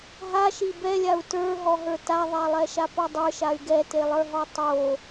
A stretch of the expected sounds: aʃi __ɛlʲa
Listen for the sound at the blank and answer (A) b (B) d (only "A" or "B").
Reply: A